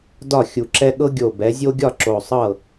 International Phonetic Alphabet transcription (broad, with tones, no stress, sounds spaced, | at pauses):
d ɒ˥˩ xʲ u˨˩ ǁ ɛ˦ ɠ ɤ˦ ɡʲ o˨˩ b ɛ˩˧ zʲ o˦ ɡʲ ɒ˥˩ ǁ o˨˩ sˤ ɤ˥˩